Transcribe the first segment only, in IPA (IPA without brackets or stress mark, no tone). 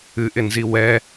ɨ